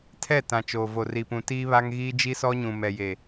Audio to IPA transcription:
tʰ ɛ˦˨ t ã˨ t͡ʃ oː˨ v o˨ r i˨ p ũ˨ t iː˦ β a˦ ŋ ɣ iː˦ d͡ʒ i˦ s ɔ˦ ɲ ũ˨ m ɛ˨ j e˨

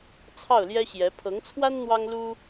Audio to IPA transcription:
t͡sʰ ɑ˥˩ ʊ̯ l j ɛ˥ ɕ j ɛ˧˥ pʰ ɤ˧˥ ŋ t͡sʰ w a˥ n n̪ w ɑ˥ ŋ l u˥

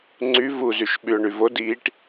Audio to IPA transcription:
ŋ͡ǀ y v u z y ʃ ɓ y ʊ̯ ɳ y v o d iː ʈ

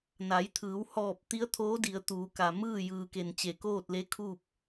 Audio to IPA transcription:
n a˩˧ j t̪ʰ ɯː˩˧ w h ɔː˧˩ p̚ t̪ i˧˥ ə̯ t̪ʰ oː˧˥ d i˩˧ ə̯ t̪ uː˩˧ k a˩ m ɯː˥˨ j ɯː˩ k e˩ n t͡ɕ e˩ k oː˥˨ t̚ l e˧˥ kʰ uː˥˨ p̚

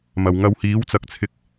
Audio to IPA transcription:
m ɐ˨˩ w ŋ ɐ˧ w h iː˨˥ w t͡s ɐ˧ k̚ t͡sʰ ɪ˧ k̚

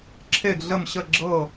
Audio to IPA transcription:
ǁʰ e˥˧ ɡ ɮ ə˥˧ m ɕ ə˥˧ ɡ͡ǁ ɤ˥˧

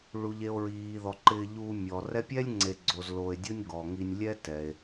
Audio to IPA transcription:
ɭ u˩ ʎ e˨ o̯ ɹ iː˩ ð ɔ˩ ǃ ɪː˨ ʎ uː˨ mʲ ɔ˩ r ɛ˦ pʲ ɛ˥ lʲ ŋ͡ǀ e˨ ɡ͡ǀ o˨ z l o˨ e̯ dʲ o˥ nʲ ɡ ɔ˩ ŋ i˨ nʲ lʲ ɛ˦ t ɛ˩ e̯

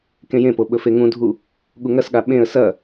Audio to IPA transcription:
k ẽ j ẽ p o ɓ ɵ f e ŋ ũ dʱ u | ɠ u ŋ ɐ s ɠ a ɓ ẽ ə̯ s ɐ

